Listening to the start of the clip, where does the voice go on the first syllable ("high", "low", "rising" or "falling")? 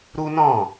high